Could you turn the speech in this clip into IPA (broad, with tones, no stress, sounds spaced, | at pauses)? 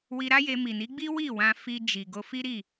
w i˧ ɾ a˦ j e˧ m i˨ n i˨˦ ɡ͡b i˦ w i˦˨ w ã˧ f i˧ d͡ʒ i˨ ɡ o˧ f i˦ ɾ i˦˨